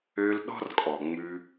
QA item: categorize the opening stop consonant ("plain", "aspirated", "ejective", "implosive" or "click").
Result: implosive